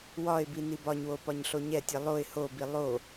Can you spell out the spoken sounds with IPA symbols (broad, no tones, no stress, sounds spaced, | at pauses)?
w ɒ ɪ̯ b i n i b ɒ ɲ w o p ɒ ɲ ɬ o ɲ ɛ tʲ ɛ lˠ o ɪ̯ h o b i lˠ o